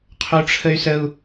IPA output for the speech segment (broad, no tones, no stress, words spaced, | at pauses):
qʰoʈ͡ʂʰəy̯səu̯